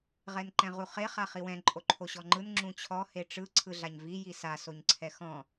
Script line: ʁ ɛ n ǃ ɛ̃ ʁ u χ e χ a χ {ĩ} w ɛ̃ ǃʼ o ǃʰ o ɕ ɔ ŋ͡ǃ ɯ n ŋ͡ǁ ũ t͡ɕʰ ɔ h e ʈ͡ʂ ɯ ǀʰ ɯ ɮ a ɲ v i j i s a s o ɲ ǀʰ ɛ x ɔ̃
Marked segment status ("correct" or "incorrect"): incorrect